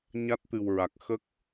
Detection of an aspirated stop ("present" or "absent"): absent